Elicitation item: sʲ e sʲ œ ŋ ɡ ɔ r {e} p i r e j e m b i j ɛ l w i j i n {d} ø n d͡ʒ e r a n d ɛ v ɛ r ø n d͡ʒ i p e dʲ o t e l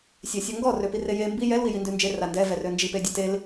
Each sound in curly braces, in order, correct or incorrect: incorrect, correct

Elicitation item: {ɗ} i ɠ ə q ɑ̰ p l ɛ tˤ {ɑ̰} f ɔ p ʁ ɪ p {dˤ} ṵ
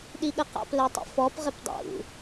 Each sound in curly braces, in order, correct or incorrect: correct, incorrect, correct

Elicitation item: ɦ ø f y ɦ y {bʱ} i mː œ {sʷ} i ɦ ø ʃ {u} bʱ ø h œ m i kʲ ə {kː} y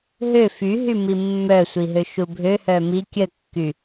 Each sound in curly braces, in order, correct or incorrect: incorrect, correct, correct, correct

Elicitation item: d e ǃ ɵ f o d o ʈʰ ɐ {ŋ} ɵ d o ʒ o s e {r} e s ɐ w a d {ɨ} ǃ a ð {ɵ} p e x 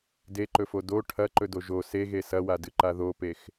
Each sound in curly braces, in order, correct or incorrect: incorrect, incorrect, correct, incorrect

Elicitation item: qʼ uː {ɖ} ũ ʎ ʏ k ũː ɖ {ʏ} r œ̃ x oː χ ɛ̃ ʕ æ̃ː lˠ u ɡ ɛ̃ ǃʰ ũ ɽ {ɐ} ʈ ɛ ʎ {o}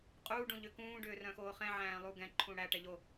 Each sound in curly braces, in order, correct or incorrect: correct, incorrect, incorrect, correct

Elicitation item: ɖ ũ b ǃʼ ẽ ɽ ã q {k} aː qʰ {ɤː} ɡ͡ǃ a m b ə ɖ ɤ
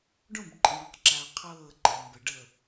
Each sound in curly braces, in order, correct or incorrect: incorrect, correct

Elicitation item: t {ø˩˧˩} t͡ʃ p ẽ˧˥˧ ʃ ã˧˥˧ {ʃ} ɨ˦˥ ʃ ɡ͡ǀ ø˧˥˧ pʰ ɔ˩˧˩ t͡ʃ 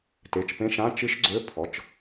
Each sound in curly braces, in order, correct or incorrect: incorrect, incorrect

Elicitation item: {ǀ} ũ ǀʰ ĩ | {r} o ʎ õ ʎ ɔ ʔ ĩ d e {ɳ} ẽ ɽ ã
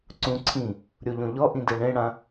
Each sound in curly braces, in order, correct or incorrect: correct, incorrect, correct

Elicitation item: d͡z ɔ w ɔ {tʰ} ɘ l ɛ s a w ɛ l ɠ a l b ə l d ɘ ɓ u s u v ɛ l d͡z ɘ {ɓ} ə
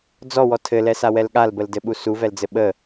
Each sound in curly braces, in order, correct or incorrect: correct, correct

